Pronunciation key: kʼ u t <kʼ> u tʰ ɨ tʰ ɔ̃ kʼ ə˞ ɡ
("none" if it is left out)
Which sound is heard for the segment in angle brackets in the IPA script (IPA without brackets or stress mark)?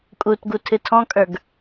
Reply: ɡ